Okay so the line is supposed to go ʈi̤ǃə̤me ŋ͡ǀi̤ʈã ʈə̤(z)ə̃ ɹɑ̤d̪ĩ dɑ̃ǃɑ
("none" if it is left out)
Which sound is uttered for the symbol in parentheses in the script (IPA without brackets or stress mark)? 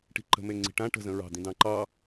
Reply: z